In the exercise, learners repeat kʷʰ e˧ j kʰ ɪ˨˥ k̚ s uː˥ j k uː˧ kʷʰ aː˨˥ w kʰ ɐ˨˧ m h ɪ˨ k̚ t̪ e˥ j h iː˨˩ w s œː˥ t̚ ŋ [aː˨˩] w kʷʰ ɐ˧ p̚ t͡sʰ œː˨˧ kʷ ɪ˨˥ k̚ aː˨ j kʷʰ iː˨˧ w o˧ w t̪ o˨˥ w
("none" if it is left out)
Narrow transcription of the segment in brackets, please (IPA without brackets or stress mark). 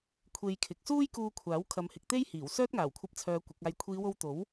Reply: aː˨˩